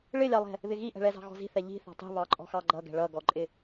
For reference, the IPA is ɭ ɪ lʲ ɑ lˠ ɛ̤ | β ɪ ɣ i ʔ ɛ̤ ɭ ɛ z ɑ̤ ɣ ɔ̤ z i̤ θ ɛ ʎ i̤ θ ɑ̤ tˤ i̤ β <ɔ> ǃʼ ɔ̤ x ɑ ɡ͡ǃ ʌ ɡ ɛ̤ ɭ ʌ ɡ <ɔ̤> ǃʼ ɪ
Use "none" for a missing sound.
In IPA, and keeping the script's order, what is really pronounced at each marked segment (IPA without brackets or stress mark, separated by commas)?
ɑ, ɔ